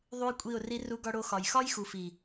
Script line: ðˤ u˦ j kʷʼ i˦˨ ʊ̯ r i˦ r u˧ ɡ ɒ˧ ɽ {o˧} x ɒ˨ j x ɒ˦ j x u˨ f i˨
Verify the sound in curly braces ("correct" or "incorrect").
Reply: correct